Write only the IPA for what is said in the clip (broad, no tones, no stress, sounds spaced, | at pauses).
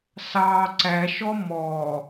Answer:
s ɑ ǀ æ ʃ ɔ m ɔ